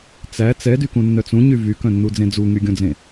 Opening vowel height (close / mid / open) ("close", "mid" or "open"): open